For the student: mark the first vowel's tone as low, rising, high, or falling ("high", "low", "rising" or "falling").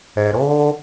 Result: low